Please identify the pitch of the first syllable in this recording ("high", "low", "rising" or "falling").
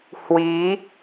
rising